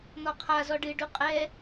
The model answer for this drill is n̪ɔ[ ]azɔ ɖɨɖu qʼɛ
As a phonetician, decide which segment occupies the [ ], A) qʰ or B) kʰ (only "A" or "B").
A